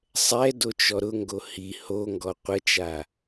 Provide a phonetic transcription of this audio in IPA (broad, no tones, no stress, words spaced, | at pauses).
sˤɛ dot͡ʃɔɾʊŋɡo hi hoŋɡɔ qʷət͡ʃa